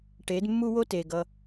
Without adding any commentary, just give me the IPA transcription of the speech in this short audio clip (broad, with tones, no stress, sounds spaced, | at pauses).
ʈ e˨˦ d mː u˦ w o˦ t e˨ ɡ ʌ˧